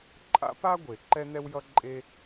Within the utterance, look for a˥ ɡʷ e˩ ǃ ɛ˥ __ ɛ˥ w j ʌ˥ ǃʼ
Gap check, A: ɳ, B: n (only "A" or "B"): B